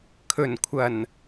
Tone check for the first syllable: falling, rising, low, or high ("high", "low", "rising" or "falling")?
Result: low